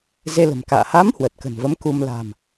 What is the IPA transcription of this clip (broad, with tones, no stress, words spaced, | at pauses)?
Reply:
ze˧lə̤˨˩mka̰ː˧˨ ha˨˦m hwə˨˩t̚kə̤˨˩nvə˨˦mku˧m la̤˨˩m